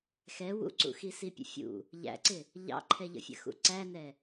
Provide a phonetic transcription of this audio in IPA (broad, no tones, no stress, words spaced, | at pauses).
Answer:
xɛ wṵǀṵ xisipʲə̰fʲṵ | ʎæ̰ǀɪ | ʎɑ̰ǃʰɛʎə̰fʲə̰ xṵǀænɛ